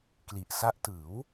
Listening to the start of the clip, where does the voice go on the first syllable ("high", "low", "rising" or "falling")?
low